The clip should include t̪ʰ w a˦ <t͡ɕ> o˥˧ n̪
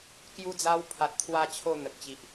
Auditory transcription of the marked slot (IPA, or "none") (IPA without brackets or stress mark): t͡ɕʰ